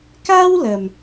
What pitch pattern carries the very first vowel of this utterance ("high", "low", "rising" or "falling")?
high